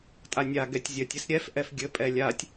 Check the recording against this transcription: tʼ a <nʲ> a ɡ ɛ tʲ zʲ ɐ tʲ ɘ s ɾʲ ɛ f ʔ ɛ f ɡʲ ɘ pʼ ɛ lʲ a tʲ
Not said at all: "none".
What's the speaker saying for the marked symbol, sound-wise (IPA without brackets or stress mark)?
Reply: nʲ